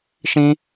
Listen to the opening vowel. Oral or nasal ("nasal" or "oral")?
nasal